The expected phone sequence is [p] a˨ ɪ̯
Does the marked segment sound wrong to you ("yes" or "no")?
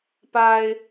no